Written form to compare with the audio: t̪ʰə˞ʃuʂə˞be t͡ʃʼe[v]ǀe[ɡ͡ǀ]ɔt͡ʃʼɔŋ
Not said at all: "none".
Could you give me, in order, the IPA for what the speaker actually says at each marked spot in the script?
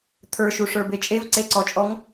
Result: v, ǀ

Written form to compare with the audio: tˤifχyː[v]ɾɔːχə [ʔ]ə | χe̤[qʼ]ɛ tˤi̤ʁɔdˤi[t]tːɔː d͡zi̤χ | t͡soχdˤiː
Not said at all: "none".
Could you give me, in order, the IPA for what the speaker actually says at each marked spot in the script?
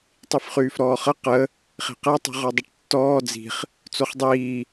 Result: f, q, q, ʈ

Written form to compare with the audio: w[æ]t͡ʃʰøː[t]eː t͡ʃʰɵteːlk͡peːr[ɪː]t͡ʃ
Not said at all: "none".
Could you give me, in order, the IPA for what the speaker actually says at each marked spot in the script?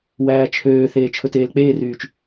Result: æː, θ, yː

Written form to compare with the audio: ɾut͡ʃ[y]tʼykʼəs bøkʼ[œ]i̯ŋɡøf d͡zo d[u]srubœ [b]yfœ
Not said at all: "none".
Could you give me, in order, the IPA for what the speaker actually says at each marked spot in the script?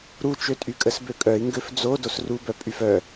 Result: ø, œ, o, pʼ

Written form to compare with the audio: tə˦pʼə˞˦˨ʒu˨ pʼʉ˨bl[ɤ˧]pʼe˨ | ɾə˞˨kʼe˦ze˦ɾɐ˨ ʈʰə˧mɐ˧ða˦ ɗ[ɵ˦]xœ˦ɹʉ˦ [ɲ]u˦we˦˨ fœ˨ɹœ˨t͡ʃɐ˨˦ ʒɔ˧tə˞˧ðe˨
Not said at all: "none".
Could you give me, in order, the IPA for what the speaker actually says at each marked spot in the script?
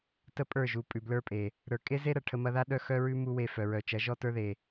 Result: ə˞˧, œ˦, m

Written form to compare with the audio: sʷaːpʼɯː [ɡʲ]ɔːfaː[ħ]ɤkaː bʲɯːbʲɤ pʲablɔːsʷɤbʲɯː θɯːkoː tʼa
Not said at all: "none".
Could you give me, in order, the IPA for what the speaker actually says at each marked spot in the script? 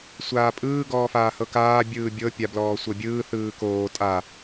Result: ɡ, h

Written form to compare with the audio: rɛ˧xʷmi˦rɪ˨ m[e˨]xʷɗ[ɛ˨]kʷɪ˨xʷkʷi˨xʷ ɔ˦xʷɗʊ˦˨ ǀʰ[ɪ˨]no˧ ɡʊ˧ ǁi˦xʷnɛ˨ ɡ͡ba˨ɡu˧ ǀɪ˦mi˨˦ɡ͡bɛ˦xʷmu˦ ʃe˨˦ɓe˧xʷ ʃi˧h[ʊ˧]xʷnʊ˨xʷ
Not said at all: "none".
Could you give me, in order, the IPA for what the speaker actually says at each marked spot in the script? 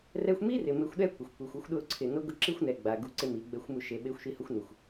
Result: e˧, ɛ˦, ɪ˨, ʊ˧

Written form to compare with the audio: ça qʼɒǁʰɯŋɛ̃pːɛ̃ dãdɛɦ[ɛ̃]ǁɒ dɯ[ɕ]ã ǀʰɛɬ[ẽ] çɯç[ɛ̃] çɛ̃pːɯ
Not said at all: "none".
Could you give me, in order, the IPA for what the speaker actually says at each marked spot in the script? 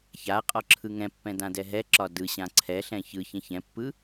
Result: ɛ, ɕ, ɛ̃, ɛ̃

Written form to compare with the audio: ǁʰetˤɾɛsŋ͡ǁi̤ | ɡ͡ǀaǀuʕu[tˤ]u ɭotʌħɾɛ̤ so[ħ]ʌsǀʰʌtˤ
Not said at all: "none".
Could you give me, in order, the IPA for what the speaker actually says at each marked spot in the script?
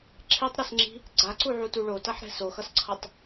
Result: t, x

